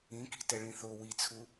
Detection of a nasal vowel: present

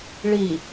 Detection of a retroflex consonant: present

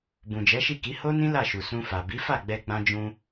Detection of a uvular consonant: absent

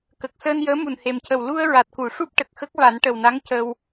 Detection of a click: absent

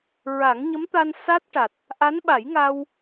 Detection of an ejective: absent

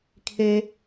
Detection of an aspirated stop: present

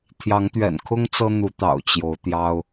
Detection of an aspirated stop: present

